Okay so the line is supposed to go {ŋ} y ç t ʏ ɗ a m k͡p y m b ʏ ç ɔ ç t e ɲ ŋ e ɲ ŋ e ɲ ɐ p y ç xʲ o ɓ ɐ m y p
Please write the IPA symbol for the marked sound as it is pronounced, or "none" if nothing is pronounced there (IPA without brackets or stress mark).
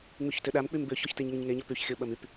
ŋ͡m